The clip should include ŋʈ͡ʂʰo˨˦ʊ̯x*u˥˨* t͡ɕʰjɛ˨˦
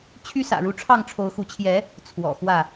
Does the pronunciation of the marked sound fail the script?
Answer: yes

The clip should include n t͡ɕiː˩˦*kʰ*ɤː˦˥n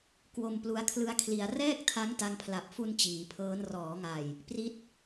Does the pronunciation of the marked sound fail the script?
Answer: yes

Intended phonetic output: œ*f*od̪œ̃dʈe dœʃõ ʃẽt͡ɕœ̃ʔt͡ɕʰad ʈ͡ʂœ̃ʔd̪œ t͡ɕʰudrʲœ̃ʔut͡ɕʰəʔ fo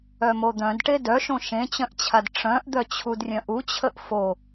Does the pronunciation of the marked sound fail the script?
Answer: yes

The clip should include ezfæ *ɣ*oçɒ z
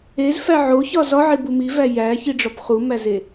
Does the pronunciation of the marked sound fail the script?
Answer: yes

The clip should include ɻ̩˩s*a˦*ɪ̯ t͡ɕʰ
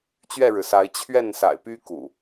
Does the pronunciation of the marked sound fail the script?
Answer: yes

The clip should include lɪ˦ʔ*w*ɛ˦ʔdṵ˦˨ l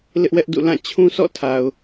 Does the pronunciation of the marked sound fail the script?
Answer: no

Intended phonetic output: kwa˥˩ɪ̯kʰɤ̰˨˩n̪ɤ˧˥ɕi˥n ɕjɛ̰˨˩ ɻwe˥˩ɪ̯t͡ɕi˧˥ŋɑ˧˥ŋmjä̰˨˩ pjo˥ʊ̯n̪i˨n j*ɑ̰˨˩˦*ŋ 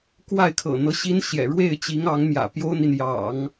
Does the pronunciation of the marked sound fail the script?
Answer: no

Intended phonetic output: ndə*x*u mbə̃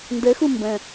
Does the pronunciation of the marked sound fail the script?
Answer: no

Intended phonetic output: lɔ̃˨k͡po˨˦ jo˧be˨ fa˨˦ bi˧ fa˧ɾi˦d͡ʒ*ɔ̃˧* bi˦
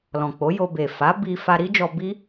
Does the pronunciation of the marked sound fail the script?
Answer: yes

